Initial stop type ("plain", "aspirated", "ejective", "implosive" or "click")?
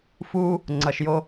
click